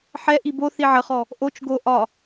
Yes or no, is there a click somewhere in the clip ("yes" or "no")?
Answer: no